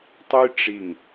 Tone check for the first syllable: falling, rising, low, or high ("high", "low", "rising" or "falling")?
high